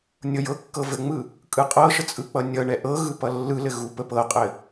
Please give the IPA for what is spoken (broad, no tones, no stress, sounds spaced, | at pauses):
nʲ ɤ j ɤ kː ɤ v ɘ ŋ͡m ɯ | kʼ ɯ qʼ ɤ ʃ ə t͡sʼ ɯ k͡p ʌ nʲ ʌ ɳ ɛ ʔ ɤ ɣ ɯ p ʌ lː ɯ l ɘ ɣ u p ə p ɤ qʼ ɘ